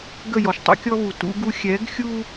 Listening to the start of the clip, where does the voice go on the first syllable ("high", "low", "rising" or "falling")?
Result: falling